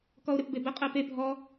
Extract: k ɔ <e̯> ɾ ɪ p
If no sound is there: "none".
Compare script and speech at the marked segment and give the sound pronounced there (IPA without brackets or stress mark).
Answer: o̯